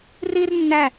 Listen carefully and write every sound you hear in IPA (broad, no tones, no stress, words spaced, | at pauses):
rir nːæ